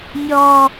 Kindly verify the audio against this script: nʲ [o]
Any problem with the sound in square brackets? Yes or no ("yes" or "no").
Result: yes